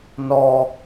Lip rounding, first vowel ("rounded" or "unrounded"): rounded